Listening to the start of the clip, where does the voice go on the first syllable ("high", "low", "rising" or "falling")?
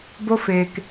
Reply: high